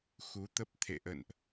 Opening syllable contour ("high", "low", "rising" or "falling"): rising